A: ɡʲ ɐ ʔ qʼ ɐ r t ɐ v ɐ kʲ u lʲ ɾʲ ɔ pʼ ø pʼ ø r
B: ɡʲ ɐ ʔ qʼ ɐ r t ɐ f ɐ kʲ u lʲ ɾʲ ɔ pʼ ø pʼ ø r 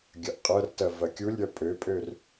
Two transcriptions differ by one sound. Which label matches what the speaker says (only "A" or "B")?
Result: A